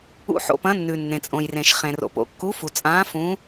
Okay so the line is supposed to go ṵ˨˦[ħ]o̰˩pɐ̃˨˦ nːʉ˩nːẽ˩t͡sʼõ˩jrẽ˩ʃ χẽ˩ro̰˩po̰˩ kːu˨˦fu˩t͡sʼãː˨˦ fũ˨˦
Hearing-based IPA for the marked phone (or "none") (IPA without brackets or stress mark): ħ